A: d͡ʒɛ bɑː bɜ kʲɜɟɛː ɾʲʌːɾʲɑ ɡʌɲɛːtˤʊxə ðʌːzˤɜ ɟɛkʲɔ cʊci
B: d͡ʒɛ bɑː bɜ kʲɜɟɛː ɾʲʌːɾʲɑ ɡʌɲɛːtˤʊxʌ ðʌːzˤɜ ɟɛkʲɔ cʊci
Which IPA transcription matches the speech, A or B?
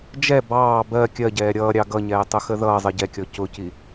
A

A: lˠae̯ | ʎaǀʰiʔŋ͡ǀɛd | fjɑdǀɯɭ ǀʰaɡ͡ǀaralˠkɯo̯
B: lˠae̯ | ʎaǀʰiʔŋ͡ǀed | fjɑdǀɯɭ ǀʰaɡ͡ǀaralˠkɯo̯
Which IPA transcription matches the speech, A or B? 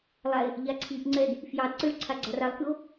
A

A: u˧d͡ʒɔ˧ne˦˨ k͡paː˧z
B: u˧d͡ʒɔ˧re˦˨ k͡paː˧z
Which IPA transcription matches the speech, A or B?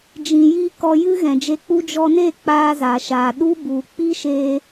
A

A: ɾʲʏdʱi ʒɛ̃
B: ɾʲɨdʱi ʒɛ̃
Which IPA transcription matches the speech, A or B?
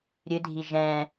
B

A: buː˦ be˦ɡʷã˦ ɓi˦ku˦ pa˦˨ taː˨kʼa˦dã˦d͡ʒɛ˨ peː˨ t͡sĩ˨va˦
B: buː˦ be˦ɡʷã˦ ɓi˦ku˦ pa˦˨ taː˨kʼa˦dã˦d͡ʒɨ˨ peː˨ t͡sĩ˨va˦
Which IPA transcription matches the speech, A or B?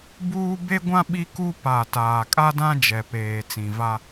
A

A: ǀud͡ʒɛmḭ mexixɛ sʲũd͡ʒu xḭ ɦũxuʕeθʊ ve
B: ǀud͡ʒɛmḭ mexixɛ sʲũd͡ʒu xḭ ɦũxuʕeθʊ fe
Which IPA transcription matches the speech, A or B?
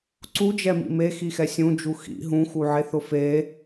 B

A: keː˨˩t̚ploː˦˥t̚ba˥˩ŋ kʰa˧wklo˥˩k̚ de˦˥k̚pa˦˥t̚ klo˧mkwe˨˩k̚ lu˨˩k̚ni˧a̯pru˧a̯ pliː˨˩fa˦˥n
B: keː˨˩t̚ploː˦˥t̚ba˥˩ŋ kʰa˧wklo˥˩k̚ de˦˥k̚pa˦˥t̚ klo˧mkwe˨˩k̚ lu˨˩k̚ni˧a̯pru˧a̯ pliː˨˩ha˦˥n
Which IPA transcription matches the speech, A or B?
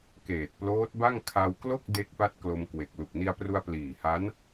B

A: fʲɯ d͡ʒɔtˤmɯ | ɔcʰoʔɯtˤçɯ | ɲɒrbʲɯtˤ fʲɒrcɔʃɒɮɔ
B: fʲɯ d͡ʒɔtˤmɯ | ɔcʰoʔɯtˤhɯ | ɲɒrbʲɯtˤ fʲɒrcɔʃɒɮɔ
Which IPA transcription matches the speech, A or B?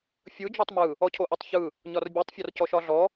A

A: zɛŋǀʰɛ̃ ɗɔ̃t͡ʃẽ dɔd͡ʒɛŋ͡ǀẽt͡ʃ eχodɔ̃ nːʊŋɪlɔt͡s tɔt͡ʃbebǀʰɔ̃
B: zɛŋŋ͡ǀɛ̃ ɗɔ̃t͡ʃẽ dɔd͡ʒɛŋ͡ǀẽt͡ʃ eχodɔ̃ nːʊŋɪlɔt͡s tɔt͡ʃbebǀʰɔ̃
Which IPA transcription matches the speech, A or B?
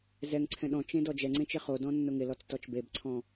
A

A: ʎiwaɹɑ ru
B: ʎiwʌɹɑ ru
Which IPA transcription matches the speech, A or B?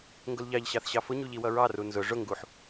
B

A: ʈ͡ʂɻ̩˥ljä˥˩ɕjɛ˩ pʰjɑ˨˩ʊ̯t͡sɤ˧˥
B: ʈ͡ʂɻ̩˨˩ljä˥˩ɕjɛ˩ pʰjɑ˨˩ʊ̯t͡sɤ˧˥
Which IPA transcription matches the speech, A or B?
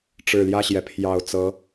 B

